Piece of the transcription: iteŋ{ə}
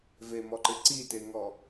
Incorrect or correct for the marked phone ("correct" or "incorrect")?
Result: incorrect